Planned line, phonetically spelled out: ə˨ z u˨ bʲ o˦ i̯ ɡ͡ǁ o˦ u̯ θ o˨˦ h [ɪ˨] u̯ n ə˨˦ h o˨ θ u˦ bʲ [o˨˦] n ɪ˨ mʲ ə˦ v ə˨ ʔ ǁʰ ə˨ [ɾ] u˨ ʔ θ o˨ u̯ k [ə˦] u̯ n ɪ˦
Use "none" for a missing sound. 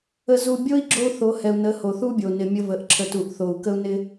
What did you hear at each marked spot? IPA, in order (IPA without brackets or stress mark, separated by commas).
ɛ˨, o˨, t, ə˦